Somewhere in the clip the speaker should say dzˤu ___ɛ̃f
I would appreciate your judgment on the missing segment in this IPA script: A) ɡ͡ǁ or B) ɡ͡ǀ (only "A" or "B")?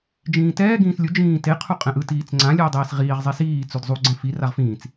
B